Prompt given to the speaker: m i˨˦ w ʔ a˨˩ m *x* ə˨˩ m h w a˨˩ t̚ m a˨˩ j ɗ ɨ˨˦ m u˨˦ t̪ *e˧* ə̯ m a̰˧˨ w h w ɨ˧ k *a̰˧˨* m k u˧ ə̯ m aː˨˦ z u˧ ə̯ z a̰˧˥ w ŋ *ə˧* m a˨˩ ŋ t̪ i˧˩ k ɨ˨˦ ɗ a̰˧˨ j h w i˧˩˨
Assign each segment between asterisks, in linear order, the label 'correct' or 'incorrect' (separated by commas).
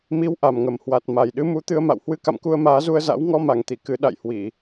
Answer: incorrect, incorrect, correct, incorrect